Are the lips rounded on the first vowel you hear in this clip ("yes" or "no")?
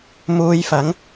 yes